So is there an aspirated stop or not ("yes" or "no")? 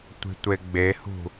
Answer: no